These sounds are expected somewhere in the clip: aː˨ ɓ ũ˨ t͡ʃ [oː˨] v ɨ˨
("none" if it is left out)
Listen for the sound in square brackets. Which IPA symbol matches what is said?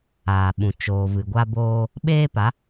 oː˨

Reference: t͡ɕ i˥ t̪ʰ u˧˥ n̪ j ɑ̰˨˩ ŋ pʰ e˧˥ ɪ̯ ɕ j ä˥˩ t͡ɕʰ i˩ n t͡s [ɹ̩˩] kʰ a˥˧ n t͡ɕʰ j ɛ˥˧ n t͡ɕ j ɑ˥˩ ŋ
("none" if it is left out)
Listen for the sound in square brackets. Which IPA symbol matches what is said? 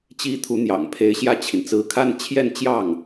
ɹ̩˧˥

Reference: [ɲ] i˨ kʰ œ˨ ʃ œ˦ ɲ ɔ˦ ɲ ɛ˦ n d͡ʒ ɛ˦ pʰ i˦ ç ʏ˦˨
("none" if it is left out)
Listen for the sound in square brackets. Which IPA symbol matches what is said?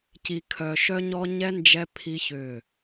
c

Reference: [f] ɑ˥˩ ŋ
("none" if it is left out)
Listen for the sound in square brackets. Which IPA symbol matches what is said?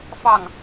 f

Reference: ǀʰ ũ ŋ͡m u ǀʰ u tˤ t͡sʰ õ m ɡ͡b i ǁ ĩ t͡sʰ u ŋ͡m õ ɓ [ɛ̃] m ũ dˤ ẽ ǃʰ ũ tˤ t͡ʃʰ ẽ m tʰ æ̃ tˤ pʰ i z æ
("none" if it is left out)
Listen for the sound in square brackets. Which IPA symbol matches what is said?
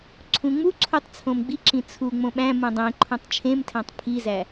æ̃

